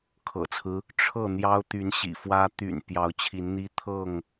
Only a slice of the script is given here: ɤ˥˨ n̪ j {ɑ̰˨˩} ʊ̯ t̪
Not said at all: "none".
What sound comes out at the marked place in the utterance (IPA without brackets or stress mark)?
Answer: ɑ˦